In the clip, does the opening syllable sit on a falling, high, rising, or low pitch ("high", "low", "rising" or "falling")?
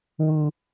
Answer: high